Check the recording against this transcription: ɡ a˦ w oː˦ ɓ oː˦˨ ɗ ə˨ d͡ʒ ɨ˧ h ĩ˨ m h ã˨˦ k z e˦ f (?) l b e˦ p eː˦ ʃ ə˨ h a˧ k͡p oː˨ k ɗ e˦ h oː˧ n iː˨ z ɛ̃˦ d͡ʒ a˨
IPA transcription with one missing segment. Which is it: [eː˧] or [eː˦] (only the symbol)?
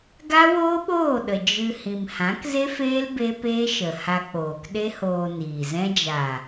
eː˦